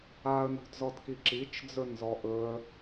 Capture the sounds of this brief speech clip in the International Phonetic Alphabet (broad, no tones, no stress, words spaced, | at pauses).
aə̯nṳdzɔdki ǁit͡ʃ d͡zɵnzɔʔɵə̯